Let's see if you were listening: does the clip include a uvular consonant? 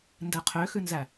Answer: yes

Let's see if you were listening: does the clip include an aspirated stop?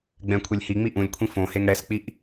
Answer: yes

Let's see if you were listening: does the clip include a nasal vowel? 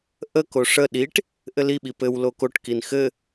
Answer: no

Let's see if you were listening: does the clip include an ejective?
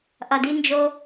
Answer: no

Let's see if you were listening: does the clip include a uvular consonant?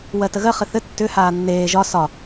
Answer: yes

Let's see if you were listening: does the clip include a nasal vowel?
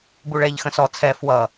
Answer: yes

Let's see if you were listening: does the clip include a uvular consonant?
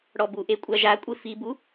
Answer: no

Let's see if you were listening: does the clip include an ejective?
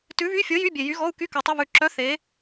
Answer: no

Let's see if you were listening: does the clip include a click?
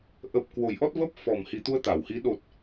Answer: no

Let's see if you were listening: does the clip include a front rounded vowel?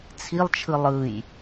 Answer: no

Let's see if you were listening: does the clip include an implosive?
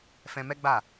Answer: no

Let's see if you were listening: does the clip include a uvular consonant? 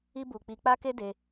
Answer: no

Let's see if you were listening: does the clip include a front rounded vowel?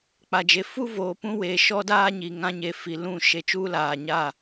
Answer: no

